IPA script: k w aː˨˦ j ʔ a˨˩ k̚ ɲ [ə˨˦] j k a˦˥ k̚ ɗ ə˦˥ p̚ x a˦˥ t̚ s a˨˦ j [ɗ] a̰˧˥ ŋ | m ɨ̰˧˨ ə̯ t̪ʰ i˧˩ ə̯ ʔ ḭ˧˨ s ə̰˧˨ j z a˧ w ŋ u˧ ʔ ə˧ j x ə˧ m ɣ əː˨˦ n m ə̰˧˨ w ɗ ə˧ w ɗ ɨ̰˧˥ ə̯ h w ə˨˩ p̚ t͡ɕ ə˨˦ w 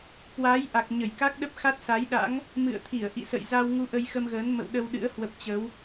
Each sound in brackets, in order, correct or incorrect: incorrect, correct

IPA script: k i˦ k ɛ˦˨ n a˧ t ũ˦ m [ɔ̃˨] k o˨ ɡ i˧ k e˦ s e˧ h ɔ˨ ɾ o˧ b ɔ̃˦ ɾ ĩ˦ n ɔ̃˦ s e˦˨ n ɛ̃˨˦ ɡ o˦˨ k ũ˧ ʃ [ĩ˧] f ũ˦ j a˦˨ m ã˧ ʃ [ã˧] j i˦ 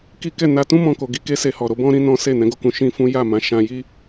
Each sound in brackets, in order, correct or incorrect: incorrect, incorrect, correct

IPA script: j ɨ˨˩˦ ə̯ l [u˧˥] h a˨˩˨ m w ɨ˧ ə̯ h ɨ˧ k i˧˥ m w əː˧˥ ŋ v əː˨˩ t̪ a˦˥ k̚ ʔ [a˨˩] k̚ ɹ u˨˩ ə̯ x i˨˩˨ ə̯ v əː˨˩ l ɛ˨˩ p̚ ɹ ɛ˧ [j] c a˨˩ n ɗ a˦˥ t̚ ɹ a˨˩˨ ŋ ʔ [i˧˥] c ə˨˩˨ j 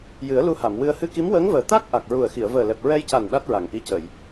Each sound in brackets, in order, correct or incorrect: incorrect, correct, correct, correct

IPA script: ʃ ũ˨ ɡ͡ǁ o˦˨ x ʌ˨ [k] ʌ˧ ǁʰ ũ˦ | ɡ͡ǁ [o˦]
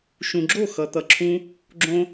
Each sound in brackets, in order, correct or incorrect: incorrect, incorrect

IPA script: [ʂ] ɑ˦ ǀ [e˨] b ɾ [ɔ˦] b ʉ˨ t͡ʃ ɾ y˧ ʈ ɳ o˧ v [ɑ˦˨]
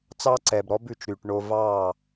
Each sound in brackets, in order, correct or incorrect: incorrect, incorrect, correct, correct

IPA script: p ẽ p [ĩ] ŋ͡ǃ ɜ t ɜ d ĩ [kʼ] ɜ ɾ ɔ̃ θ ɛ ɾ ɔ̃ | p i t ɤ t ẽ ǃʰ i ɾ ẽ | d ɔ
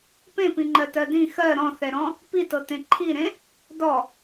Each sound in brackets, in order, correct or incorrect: correct, incorrect

